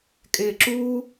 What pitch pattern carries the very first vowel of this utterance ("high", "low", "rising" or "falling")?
low